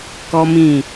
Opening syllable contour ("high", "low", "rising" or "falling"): high